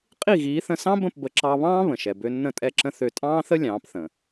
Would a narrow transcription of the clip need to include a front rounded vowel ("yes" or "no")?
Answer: yes